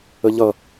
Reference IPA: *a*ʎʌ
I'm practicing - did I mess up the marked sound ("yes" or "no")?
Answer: yes